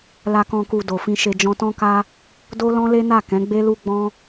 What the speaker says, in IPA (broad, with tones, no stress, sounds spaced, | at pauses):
l a˨ k ɔ̃˨ k u˨ d o˨ f ĩ˧ ʃ e˧ d͡ʒ ɔ̃˧ t ɔ̃˦ k a˦ | d o˦ l ɔ̃˦ l e˦ n a˦˨ k ɛ̃˨˦ ɡ͡b e˦ l u˦ ɡ͡b ɔ̃˦